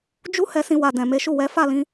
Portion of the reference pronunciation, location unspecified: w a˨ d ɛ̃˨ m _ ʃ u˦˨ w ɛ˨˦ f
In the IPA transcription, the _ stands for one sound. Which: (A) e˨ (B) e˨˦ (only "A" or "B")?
B